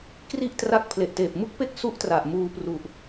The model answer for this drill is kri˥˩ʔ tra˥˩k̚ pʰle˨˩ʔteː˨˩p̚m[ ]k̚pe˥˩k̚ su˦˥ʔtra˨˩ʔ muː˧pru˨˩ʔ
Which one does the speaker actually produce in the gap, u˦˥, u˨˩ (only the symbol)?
u˦˥